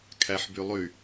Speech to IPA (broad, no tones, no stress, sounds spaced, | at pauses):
kʰ æ ħ b y lˠ y